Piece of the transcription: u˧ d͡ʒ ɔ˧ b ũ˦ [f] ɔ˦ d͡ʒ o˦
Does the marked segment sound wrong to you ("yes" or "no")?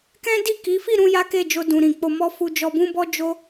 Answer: yes